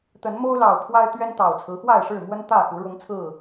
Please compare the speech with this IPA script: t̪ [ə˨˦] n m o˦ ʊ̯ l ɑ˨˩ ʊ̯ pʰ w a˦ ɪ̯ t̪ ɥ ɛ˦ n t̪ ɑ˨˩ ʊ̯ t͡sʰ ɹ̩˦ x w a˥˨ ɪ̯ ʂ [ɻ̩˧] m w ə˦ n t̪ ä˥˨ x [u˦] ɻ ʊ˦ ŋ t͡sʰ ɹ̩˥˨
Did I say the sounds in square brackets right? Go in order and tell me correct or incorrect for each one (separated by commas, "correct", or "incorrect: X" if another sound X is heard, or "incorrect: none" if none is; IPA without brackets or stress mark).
correct, incorrect: ɻ̩˥˨, incorrect: u˨˦